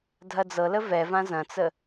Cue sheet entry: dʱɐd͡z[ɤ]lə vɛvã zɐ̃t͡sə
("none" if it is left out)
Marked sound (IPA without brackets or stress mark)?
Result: ɤ